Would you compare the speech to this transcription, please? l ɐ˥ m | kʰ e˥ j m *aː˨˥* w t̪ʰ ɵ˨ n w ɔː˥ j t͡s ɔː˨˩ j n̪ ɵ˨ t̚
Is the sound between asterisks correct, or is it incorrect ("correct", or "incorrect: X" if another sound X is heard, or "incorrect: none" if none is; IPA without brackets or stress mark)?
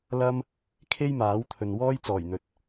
correct